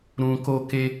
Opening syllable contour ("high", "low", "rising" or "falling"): low